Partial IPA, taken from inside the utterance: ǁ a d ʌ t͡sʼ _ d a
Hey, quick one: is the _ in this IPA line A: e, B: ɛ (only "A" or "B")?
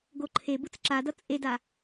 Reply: A